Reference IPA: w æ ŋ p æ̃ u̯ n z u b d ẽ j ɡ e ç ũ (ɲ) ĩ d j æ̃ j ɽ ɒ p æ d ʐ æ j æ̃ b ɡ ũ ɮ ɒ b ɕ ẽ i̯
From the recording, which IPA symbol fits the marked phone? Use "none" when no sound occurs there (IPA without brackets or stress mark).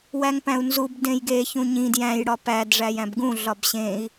ɲ